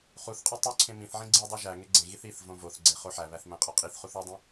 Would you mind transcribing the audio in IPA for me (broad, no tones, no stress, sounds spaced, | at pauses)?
χ u θ qʼ o tˤ u ǀʰ ẽ m ĩ θ ʕ ĩ ɡ͡ǀ i dˤ i ʒ æ ŋ e ɡ͡ǀ ẽ ɣ i θ i θ v õ v o θ ɡ͡ǀ e χ o ħ æ β æ θ m æ̃ qʼ ɒ qʼ i θ χ u θ u dˤ ĩ